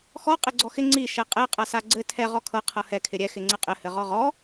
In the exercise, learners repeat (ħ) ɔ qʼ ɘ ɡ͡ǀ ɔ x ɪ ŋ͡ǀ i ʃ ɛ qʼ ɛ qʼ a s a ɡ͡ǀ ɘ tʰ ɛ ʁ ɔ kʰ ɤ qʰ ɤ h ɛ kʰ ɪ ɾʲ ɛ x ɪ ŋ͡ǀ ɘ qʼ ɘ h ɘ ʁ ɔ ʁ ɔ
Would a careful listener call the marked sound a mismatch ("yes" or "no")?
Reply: yes